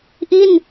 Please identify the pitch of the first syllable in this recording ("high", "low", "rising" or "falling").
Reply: falling